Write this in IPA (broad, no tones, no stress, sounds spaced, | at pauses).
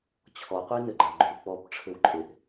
t͡ɕʰ ɔ qʷ e n ɘ ɡ͡ǃ a ɡ͡ǃ u k͡p ɔ b ʈ͡ʂʰ ɘ w ǃʼ e ʔ